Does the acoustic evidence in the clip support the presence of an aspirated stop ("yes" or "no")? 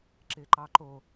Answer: no